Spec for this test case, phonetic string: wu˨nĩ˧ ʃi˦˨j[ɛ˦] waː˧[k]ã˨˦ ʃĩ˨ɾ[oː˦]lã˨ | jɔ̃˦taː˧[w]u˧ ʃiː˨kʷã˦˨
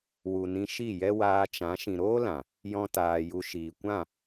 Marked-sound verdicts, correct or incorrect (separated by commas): correct, incorrect, correct, incorrect